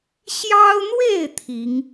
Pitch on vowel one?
high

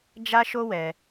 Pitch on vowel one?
high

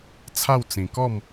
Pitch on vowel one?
falling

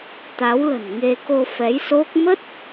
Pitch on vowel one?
rising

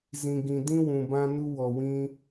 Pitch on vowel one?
low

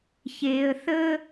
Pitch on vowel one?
low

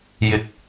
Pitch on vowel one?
low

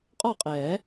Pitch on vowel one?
falling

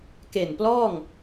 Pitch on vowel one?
low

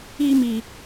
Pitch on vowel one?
high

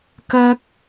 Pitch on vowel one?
high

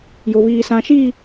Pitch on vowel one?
low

